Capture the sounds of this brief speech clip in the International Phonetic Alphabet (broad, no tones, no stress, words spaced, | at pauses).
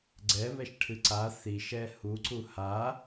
ɡ͡ǀɛβɛʃʈʰɨ ǀa θiʃɛ huǀu ha